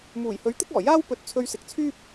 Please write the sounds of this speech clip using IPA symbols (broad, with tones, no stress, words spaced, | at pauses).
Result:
muː˨˩jhɵ˨˥ɥ t̪ɪ˥k̚ɔː˨˩ jaː˥w pɵ˨˥t̚ t͡sʰɵ˧ɥsɪ˨k̚t͡sʰyː˥p̚